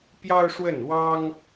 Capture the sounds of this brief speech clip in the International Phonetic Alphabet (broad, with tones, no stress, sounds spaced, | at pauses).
p j ɑ˥ ʊ̯ ʂ w ə˥˩ n w ɑ˥ ŋ